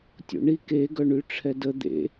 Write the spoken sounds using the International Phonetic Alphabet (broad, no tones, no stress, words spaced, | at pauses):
tʲo̰ɳi ke ɡœɳyʈ͡ʂʰɛdə d̪ḛ